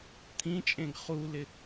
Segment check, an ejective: present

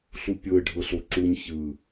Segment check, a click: present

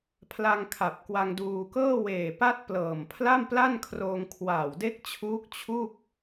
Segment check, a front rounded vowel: absent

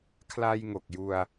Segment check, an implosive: absent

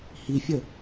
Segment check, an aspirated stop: absent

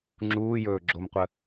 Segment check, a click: present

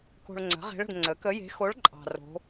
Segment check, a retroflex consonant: present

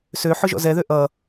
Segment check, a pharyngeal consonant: present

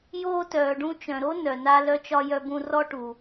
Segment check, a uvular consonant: absent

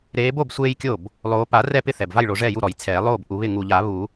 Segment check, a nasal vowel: absent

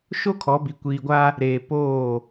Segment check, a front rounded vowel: absent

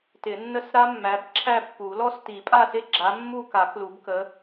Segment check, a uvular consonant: absent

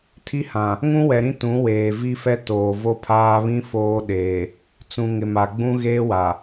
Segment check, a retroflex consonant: absent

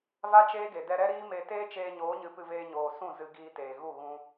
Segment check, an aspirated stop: absent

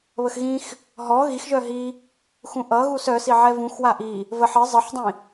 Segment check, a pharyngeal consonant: present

